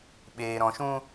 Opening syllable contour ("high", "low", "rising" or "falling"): low